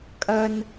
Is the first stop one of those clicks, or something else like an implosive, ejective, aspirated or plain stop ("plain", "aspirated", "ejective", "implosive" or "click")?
ejective